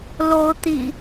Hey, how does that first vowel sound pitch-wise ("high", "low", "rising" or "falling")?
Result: rising